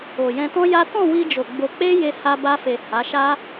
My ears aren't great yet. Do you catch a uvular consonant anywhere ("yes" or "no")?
no